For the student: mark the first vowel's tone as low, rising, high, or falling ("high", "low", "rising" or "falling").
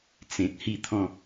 low